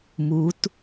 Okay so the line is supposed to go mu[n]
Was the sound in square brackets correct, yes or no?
no